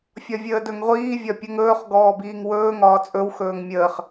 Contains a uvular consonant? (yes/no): yes